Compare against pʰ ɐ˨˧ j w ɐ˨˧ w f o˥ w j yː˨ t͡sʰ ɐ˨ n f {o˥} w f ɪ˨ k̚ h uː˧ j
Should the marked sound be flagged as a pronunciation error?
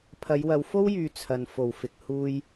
yes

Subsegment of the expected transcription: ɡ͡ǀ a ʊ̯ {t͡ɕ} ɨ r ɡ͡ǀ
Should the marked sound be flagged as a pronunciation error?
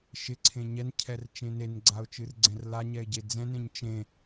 yes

